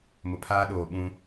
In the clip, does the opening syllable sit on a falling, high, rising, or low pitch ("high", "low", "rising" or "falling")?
low